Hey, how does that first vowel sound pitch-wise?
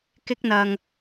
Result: high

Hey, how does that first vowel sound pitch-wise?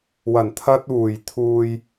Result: low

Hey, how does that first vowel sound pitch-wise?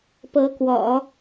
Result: rising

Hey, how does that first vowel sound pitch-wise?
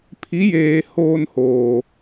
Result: rising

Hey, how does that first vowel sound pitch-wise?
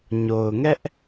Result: low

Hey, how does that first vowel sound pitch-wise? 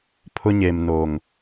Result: high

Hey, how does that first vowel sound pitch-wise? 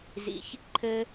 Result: low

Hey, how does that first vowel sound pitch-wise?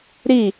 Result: falling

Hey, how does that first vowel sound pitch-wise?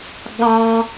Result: high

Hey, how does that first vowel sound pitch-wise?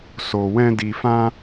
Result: low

